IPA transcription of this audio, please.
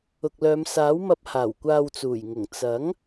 ʊ˨k̚lœː˨˧msaː˨˥wmɐ˧p̚ haː˨˩wkʷaː˨wt͡suː˨˩jŋʊ˨˩ŋ t͡sɐ˨˥ŋ

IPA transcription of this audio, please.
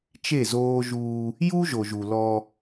t͡ʃe˦˨zoː˦ʒuː˦ | ju˦ʒo˨ʒ u˨lɔ˦

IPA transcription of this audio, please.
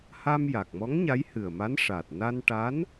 ha˧mja˨˩k̚mɔ˧˥ŋ ɲa˧˥jhɨ˨˩ə̯ma˧˥n ʂa˨˩t̚na˧nʈa˧˥n

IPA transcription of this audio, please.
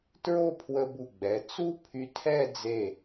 tɹo˥˧pʰwə˧bu˧˩ ɡ͡bɛ˩˧t͡su˥ pʰy˧tʰɛ˥˧d͡ze˧˩

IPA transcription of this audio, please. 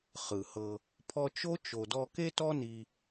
χɯ˨hɤ˧ | pʰɔ˧t͡ʃo˦t͡ʃo˨ dɔ˧ ke˦tɔ˦ni˧

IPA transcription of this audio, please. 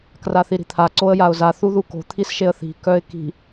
kraθiɾi̤t̪ʰa ǀoə̯jaʊ̯za θuðuko̤ t̪ʰisʃeə̯θi̤ kœɪ̯ki̤

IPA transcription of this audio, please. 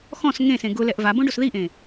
xɔ̃s ŋẽsẽ ɡʊlɛʔ vabõɖos ðiʔẽ

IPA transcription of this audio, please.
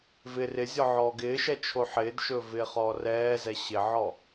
vɪ rɪzʲɔ ʕɔːɡɪːʃɛ t͡ʃʰoħɪːdʃɵ vɪːχɔːrɛːzɛ ɕɪʕɔ

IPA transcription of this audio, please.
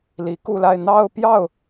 li˧˥ku˥˧la˥˧ɪ̯ n̪ɑ˥˧ʊ̯pjɑ˥˩ʊ̯

